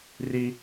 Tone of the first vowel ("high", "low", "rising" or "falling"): high